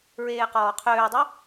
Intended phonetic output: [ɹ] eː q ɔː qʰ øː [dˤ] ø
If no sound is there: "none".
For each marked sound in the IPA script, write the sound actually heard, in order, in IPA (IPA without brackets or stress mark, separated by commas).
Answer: ɹ, dˤ